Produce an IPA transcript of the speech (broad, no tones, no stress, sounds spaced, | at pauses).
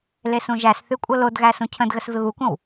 l e s ũ ʒ æ s θ ʉ kʷʼ ɤ l o d ɣ æ s ũ cʰ ə̃ d ɣ ə s v ɪ β u kʷ ə̃ w